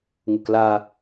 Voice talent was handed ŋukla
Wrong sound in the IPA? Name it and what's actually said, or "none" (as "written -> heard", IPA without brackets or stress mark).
none